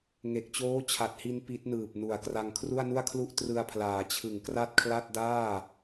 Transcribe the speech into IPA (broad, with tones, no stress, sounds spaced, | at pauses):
ŋ e˨˩ k̚ t͡ɕ oː˦˥ t͡ɕʰ a˨˩ t̚ h i˧ n p i˦˥ t̚ n ɯː˨˩ p̚ n u˨˩ a̯ k r a˧ ŋ kʰ r u˥˩ a̯ n u˥˩ a̯ kʰ l u˥˩ ʔ t r ɯ˧ a̯ pʰ l aː˩˦ t͡ɕʰ ɯ˨˩ ŋ k r a˥˩ t̚ kʰ l a˥˩ t̚ d aː˥˩